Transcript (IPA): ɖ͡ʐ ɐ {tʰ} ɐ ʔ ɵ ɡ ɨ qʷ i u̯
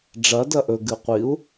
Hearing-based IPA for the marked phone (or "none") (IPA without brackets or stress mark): d